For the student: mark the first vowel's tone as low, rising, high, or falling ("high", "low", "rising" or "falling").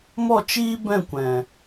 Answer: falling